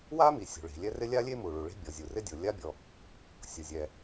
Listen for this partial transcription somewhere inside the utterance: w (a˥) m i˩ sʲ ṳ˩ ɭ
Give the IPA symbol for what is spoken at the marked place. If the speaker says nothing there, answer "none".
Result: a˥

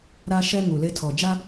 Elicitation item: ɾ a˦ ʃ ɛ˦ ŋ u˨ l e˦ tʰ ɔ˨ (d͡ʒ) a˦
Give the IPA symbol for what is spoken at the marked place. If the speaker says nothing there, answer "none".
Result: d͡ʒ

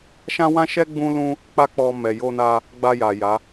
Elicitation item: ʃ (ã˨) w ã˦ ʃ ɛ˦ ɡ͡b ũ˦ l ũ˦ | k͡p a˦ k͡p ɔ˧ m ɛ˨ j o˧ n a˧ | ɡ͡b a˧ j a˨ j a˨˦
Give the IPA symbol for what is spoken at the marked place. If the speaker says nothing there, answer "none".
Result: ã˦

